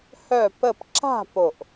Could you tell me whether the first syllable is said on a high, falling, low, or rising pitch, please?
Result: falling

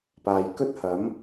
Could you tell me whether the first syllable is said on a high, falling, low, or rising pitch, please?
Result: low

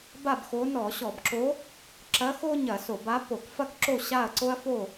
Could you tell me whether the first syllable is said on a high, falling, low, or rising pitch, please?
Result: falling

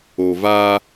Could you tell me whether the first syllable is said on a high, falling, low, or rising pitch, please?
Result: low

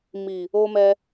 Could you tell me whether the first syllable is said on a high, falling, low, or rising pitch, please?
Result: low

